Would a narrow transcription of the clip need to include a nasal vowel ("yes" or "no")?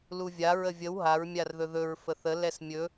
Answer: no